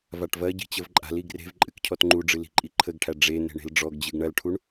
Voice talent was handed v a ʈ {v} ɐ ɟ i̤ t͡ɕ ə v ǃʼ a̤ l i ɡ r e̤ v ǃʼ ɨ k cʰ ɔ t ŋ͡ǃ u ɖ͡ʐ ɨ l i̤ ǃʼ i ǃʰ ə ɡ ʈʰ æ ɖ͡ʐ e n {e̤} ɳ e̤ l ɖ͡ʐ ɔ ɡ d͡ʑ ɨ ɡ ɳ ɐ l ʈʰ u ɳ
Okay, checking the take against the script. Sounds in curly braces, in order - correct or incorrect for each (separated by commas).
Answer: correct, correct